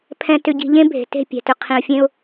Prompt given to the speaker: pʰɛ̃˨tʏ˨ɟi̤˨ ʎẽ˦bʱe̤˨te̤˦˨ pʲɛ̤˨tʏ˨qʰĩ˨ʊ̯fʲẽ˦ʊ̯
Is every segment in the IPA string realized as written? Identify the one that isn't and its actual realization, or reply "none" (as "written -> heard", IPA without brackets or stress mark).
none